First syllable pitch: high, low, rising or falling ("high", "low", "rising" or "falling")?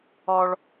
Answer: high